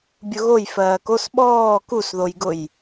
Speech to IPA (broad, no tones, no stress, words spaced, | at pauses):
bʲʊɣoj fɜːkos ɓɔː kusðojɡʊj